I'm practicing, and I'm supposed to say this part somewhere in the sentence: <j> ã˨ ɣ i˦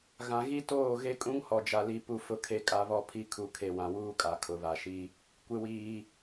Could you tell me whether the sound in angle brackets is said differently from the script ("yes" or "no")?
yes